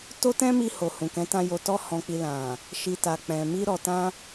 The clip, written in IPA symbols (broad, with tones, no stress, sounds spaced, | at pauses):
t o˦ t ɛ̃˦ m i˧ h o˨ h ũ˨ k ɛ̃˨˦ t ã˧ j o˧ t ɔ˦ h ɔ̃˧ k͡p i˧ l ã˨ | ʃ i˨ t a˨ k͡p ɛ̃˨ m i˧ ɾ ɔ˨ t ã˧